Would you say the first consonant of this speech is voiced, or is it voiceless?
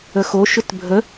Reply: voiceless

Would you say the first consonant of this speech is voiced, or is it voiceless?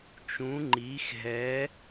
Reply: voiceless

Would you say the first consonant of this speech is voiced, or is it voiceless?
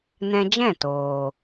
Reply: voiced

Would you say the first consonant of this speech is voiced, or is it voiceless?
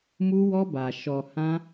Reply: voiced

